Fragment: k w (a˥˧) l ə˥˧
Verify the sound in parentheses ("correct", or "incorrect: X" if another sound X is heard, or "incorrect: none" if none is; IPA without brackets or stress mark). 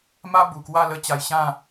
correct